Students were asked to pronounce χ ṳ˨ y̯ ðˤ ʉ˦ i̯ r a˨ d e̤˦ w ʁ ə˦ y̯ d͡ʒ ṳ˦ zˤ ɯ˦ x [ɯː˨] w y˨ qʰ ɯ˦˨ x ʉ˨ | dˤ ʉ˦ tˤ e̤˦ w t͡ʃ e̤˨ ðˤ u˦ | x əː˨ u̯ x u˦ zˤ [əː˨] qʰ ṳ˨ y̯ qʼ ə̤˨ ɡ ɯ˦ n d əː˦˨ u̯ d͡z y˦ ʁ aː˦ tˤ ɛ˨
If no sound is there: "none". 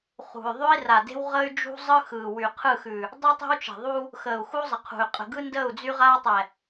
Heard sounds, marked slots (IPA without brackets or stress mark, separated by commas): ɯː˨, ə˨